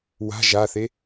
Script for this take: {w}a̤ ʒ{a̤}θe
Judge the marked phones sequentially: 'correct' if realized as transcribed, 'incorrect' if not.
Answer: correct, incorrect

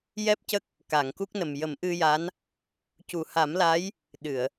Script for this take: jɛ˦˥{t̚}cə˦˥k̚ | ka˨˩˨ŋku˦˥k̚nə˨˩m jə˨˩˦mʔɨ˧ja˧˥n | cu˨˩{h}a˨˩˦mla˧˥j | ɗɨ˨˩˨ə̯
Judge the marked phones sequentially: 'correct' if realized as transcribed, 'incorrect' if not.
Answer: incorrect, correct

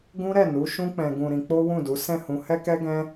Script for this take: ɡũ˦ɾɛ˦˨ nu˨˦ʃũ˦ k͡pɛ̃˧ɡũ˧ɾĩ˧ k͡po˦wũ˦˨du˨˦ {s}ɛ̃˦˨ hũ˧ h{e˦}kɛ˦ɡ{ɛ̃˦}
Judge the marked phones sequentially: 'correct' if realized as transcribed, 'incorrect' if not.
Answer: correct, incorrect, correct

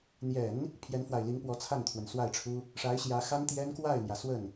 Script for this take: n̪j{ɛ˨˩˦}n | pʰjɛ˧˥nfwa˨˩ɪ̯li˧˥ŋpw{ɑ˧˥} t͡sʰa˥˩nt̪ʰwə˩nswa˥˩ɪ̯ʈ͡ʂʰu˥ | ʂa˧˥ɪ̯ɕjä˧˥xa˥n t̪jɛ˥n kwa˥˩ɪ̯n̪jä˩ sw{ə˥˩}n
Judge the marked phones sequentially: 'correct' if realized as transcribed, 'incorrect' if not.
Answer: correct, incorrect, correct

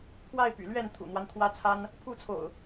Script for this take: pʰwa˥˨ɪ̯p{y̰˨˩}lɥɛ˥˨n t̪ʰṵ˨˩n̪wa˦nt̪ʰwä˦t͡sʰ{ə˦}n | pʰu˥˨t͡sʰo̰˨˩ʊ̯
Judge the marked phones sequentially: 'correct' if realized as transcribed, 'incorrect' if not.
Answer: correct, incorrect

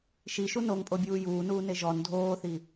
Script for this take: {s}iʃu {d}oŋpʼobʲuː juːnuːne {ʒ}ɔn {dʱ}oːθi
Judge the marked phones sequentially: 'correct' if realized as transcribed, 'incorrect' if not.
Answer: incorrect, incorrect, correct, correct

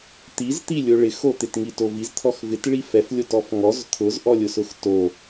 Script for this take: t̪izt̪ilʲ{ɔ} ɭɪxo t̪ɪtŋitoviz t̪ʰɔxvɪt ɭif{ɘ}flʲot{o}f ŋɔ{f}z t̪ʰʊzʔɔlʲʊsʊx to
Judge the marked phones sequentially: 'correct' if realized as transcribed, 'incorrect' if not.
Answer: incorrect, incorrect, incorrect, incorrect

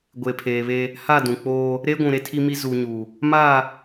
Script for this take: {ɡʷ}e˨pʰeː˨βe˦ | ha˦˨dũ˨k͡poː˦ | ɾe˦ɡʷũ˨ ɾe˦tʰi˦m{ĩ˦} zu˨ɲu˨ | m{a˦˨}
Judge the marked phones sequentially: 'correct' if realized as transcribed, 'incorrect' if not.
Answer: correct, incorrect, correct

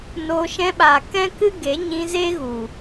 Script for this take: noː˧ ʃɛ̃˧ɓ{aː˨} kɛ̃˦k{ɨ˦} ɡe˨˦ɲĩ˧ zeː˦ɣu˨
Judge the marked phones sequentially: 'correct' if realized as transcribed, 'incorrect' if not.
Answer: correct, correct

